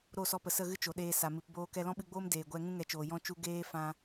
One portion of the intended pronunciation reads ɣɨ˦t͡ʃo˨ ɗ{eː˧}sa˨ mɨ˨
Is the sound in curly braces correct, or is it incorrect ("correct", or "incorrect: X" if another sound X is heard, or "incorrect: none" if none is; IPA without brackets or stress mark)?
correct